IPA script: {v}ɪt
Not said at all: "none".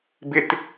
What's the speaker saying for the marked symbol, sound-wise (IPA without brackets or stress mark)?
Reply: b